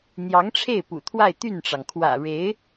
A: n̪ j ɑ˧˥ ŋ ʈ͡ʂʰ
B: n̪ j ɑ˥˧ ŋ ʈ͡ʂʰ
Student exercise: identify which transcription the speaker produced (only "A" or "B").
A